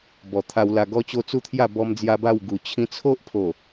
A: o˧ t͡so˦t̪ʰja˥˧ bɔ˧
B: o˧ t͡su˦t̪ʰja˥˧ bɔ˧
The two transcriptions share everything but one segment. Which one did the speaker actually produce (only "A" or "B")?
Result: B